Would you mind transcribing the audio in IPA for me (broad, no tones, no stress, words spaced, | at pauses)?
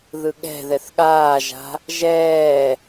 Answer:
ðɯɠɛ̤ðɛθ ɠaːʒa̤ | ʒɛː